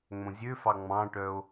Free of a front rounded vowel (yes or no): no